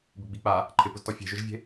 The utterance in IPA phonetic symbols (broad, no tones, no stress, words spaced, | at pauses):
bɪɡ͡bik͡pa | ǃʰɪpʊztɔ fʲe̤ʒʊʒvʲe̤